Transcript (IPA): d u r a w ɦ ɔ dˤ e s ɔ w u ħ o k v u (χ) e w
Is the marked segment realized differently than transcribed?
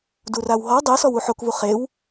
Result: no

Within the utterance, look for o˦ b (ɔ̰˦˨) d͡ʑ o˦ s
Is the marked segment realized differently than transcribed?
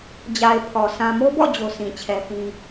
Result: no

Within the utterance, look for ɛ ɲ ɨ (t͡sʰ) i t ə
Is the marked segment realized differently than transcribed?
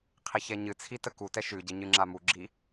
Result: no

